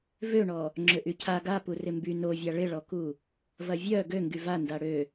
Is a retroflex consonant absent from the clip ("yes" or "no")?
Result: no